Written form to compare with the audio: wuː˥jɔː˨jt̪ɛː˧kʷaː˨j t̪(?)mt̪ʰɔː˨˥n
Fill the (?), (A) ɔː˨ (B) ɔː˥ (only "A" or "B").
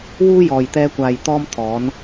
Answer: B